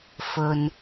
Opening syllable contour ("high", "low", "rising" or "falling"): low